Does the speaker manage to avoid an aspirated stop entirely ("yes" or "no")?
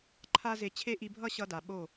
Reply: no